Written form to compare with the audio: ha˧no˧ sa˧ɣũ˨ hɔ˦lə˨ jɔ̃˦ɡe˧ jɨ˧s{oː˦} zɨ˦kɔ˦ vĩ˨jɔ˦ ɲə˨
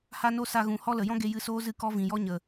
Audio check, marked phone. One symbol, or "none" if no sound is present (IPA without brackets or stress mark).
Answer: oː˦